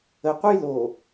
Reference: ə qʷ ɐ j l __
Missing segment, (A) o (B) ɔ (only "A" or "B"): A